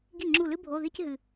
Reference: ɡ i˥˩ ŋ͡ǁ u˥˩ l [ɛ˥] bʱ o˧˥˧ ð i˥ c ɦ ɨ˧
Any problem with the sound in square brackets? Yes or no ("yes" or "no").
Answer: yes